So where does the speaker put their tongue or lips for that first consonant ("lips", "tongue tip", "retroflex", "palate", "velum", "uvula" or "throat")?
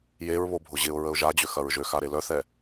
palate